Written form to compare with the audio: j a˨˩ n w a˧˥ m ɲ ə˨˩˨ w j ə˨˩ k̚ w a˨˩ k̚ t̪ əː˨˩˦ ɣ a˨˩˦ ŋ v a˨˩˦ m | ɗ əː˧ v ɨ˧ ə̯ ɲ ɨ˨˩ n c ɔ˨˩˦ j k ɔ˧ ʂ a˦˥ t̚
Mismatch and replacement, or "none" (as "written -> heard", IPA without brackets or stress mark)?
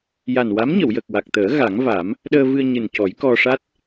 none